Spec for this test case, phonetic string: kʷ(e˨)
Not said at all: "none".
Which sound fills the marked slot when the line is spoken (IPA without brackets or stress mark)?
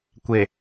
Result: e˨